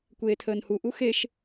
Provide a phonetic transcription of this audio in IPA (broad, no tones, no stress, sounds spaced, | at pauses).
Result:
kʷ eː tʰ əː n h u ʔ u x e ʃ